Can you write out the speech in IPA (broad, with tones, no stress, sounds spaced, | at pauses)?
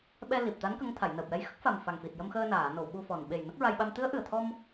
ɓ ɛ˧ l i˨˩ p̚ t̪ a˧˥ n k ə˧˥ ŋ t̪ʰ a˨˩˨ j n əː˨˩ p̚ j ɛ˧˥ j x ə˦˥ k̚ f a˨˩ m f a˨˩ ŋ f i˨˩ t̚ j ə˧ m x əː˧ n aː˨˩˨ n o˨˩˨ w ɓ u˧ f ɔ˨˩ n ɓ e˨˩ j n ə˦˥ k̚ ɹ a˧ j ɓ a˧ m t̪ ɨ˧˥ ə̯ ʔ ɨ˨˩ ə̯ t̪ʰ ɔ˧ m